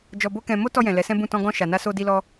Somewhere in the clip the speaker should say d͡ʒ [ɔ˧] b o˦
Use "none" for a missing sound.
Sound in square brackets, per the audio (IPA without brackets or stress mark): ɔ˧